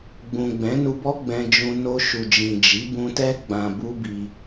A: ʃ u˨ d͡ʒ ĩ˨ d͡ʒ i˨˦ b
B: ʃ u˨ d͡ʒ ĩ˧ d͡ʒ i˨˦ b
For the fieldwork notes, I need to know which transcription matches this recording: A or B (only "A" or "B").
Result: A